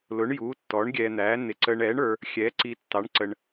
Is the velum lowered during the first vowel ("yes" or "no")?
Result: no